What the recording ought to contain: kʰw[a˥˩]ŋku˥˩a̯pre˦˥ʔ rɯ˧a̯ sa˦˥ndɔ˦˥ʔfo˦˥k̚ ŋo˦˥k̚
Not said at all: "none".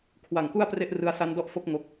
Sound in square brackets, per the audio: a˨˩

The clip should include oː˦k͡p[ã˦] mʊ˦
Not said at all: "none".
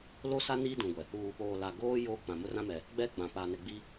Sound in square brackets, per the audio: ã˨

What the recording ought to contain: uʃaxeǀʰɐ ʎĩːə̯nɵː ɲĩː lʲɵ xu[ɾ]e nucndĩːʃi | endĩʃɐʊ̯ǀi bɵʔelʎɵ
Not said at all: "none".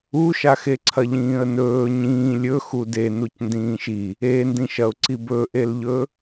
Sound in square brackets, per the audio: d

